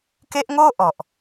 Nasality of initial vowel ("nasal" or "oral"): oral